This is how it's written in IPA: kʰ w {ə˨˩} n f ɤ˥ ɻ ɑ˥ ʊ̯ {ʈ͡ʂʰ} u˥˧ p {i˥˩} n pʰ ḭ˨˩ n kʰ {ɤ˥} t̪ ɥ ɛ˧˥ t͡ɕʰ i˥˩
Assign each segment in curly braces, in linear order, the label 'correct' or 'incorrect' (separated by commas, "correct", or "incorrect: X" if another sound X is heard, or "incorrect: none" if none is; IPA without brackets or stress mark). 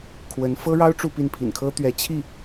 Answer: incorrect: ə˧˥, incorrect: ʈ͡ʂ, correct, correct